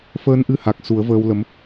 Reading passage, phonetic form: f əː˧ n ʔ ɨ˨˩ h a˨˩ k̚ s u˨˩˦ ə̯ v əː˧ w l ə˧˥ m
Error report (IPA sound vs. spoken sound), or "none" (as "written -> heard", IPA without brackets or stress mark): ɨ˨˩ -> ɨ˧